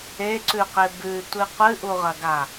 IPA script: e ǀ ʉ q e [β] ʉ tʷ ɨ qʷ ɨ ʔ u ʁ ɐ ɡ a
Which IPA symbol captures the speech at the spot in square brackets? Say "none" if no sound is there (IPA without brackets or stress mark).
b